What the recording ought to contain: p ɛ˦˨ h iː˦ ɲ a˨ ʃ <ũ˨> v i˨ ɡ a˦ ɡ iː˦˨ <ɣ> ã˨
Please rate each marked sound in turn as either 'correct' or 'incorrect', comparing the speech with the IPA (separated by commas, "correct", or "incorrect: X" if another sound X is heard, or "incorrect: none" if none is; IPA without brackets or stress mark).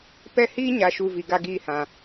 incorrect: u˨, incorrect: h